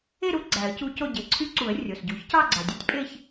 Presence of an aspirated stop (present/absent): present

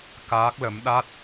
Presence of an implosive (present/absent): present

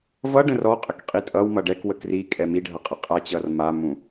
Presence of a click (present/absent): absent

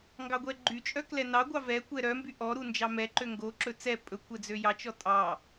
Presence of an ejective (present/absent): present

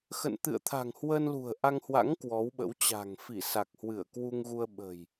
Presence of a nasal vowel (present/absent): absent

